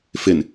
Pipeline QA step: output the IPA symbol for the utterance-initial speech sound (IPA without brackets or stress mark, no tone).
f